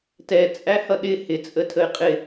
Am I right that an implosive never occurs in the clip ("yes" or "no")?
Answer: no